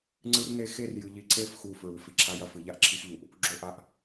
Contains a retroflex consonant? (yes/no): no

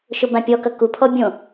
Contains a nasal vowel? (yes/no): yes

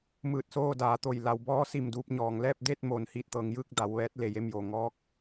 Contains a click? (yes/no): no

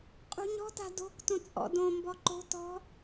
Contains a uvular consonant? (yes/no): yes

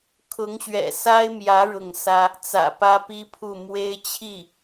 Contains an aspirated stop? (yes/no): yes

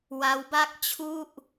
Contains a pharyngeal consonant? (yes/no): no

